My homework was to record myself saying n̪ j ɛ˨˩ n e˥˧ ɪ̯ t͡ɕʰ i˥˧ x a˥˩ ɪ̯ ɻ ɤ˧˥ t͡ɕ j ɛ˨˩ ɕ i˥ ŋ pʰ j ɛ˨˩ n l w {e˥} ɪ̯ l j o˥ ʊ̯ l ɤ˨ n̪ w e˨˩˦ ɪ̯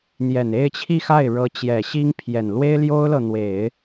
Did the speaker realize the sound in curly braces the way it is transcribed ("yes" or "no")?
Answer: yes